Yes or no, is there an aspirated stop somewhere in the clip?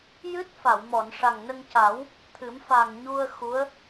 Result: yes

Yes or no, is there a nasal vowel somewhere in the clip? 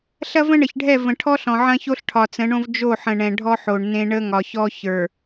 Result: yes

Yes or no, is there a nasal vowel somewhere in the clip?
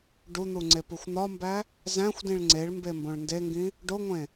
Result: yes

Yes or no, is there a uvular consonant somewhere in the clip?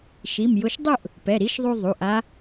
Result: no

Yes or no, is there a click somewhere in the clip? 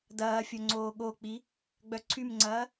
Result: yes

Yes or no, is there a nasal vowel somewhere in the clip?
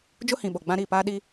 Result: yes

